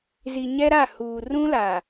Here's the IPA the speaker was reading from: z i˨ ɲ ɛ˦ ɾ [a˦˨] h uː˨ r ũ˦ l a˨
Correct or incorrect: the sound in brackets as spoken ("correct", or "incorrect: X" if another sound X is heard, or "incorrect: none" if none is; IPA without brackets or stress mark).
correct